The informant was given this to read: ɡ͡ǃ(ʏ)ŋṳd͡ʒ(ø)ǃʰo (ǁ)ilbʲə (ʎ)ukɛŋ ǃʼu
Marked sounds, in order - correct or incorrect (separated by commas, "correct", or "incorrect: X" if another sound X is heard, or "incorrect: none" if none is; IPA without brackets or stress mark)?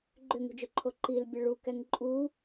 correct, incorrect: ɵ, incorrect: ǃ, incorrect: ɭ